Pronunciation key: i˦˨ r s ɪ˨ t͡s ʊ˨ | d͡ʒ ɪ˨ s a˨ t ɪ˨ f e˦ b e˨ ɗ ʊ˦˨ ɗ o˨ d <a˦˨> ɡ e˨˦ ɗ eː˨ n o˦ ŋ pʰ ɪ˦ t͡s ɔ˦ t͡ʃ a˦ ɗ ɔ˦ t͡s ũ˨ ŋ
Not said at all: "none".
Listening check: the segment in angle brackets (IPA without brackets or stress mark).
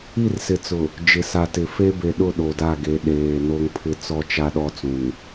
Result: a˦˨